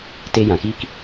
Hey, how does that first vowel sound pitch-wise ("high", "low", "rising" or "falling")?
high